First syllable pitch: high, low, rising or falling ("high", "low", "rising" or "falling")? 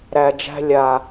low